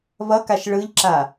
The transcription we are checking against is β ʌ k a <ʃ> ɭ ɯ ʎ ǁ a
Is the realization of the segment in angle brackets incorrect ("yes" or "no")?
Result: no